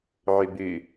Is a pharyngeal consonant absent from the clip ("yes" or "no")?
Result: no